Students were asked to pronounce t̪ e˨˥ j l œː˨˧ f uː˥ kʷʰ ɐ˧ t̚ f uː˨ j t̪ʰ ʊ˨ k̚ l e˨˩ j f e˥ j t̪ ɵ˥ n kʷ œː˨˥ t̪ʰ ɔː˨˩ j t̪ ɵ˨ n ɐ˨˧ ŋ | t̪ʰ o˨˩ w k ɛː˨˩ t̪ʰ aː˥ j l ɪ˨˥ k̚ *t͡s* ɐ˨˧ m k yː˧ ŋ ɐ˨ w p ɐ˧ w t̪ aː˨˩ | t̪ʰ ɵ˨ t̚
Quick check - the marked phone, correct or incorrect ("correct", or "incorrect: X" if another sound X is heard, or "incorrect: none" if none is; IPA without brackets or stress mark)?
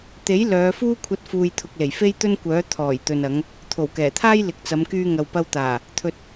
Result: correct